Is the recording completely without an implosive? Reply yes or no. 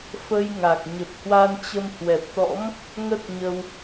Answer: yes